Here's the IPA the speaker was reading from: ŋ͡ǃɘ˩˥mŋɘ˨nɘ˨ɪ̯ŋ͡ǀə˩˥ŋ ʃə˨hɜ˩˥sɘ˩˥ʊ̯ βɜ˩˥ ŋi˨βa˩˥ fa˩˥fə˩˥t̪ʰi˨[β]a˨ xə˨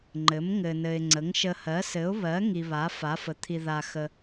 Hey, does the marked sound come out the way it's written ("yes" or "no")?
no